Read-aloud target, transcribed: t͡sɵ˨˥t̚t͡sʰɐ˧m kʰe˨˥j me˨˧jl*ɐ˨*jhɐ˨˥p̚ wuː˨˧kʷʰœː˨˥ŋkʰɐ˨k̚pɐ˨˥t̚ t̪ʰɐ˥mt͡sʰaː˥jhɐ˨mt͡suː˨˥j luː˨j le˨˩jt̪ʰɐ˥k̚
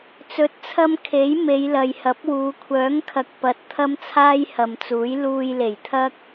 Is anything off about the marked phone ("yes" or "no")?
no